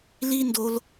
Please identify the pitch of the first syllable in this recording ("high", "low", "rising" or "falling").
high